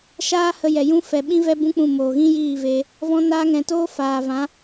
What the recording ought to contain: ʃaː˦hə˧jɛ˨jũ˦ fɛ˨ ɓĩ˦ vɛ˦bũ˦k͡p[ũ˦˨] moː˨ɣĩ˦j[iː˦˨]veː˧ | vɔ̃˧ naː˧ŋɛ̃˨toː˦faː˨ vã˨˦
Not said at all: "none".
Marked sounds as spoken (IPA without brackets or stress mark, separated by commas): ũ˦˨, iː˦˨